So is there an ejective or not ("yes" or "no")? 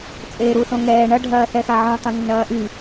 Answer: yes